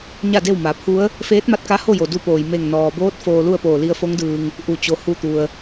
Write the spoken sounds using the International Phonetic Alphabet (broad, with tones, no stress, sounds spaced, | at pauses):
ɲ a˥˨ d e˥˨ w m a˩˧ pʰ u˧˥ ə̯ | f eː˧˥ t̚ m a˧ t̚ k a˧˥ h o˥˨ j o˩ d u˧ p oː˩ j m e˧˩ ŋ n ɔː˩ b oː˧˥ t̚ f oː˧ l u˥˨ ə̯ p oː˧˩ l i˧ ə̯ f o˧˥ ŋ d ɯː˩ ŋ | ʔ u˧˩ t͡ɕ o˩˧ h u˧˩ t̪ u˩ ə̯